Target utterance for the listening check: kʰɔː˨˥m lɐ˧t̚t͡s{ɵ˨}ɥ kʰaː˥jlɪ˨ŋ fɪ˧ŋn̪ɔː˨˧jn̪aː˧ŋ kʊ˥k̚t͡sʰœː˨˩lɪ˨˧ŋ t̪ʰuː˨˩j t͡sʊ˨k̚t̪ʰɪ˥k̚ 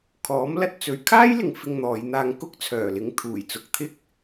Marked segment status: correct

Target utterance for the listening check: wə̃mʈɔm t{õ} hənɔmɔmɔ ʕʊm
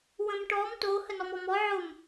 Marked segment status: incorrect: o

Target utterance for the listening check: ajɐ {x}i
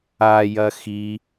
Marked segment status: correct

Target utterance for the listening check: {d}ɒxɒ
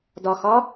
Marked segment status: correct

